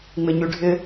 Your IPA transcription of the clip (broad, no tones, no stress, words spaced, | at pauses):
ŋ͡mɪɲyɖʱɪ